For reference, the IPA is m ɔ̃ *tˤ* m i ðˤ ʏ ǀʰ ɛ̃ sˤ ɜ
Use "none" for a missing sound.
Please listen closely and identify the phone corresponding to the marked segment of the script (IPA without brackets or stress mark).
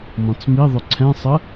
t͡s